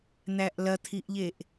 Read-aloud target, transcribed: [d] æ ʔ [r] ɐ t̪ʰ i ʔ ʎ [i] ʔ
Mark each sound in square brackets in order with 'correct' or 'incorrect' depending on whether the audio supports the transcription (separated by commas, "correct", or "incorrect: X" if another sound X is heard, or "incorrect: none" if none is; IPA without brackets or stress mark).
incorrect: n̪, incorrect: l, incorrect: e